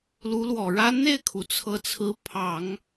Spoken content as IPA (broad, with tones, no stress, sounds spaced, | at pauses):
l u˧˥ l w ɔ˨˩ ɻ ä˥ n̪ e˥˩ ɪ̯ kʰ u˩ t͡sʰ ɤ˧˥ t͡sʰ ɹ̩˧˥ pʰ ɑ˨˩˦ ŋ